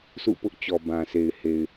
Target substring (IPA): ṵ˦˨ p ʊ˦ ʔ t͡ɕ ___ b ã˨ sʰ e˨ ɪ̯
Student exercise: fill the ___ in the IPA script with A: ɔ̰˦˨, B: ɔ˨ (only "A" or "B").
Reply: B